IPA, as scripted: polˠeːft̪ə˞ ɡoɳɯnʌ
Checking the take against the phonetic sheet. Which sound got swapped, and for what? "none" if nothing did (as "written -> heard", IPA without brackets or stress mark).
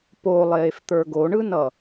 none